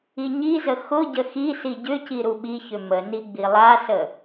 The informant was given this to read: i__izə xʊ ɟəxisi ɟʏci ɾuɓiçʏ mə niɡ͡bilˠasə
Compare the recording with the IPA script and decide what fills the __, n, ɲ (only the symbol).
ɲ